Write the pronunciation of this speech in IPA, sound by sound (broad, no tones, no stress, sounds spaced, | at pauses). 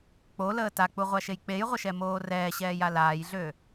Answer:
k͡p o l əː t a k͡p u ʁʷ a ʃ e j k͡p e j ʁʷ ə ʃ ɛ m oː r ɛː ɕ ɛː j a l aː j ɮ ø